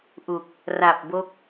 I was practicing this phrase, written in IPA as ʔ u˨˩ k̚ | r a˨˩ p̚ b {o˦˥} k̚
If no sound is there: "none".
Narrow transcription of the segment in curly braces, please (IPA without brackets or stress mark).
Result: o˦˥